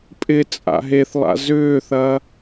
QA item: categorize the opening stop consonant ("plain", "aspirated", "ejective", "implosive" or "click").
ejective